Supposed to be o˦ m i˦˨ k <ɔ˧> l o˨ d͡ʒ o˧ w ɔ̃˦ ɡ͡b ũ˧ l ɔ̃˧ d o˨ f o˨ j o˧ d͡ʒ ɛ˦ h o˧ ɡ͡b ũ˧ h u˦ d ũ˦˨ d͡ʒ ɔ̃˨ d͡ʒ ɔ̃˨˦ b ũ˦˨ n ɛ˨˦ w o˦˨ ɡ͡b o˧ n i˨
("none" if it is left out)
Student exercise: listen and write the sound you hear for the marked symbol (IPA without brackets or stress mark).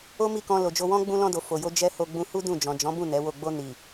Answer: ɔ̃˧